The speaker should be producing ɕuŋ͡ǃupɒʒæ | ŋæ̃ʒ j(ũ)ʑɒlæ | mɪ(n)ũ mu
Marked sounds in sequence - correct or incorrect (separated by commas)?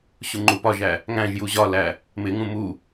incorrect, incorrect